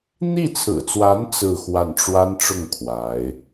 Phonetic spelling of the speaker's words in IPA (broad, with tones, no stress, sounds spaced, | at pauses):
n̪ i˥˩ t͡sʰ ɹ̩˨˩ t͡s w a˧˥ n t͡s ɹ̩˥˧ x w a˥˩ n ʈ͡ʂ w a˥ n ʈ͡ʂ ʊ˥˩ ŋ kʰ w a˧˥ ɪ̯